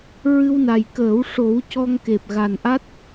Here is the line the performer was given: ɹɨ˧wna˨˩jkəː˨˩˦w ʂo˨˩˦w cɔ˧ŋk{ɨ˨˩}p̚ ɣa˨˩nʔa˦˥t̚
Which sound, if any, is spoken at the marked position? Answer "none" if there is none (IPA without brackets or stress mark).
e˨˩